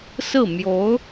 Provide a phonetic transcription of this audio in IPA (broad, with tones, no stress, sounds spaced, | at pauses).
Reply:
s ɹ̩˥˩ m j o˧˥ ʊ̯